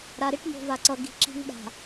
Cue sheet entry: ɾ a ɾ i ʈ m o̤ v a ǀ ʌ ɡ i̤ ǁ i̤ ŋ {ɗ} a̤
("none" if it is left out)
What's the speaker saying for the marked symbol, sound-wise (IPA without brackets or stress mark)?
ɗ